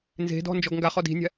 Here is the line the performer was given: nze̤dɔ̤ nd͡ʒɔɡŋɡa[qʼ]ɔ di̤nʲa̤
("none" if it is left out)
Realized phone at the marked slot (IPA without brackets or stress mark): χ